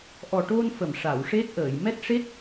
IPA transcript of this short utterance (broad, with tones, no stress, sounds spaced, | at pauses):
ʔ ɔ˨˩ ʈ o˧ n f ə˨˩˨ m ʂ a˨˩˨ w ʂ e˦˥ t̚ ʔ əː˨˩˨ j m ɛ˦˥ t̚ ʂ e˦˥ t̚